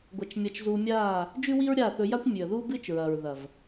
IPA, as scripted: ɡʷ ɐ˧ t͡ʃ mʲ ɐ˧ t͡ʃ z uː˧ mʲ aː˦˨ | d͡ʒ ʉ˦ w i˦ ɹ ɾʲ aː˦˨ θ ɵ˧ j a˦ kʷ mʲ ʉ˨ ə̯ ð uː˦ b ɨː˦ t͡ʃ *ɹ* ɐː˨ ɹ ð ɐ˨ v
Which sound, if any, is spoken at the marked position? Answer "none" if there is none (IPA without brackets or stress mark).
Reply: ɹ